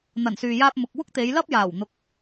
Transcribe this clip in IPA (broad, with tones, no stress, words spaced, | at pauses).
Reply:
n̪ɐ˨˩nsyː˨jaː˧p̚ mʊ˨k̚ wʊ˥k̚t̪e˨˧jlɐ˥p̚ jaː˨˩wn̪ʊ˨˥k̚